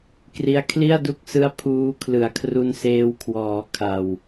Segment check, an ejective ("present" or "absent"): absent